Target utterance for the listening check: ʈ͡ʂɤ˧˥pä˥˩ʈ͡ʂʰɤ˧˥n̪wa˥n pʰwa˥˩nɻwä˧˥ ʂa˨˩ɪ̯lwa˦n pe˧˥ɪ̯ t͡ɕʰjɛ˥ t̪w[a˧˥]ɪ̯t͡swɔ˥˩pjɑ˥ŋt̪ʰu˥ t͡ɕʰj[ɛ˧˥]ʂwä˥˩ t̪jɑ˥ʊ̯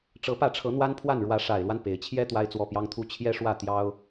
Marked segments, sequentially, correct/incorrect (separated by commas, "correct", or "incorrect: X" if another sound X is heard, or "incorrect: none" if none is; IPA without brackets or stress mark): incorrect: a˥, incorrect: ɛ˥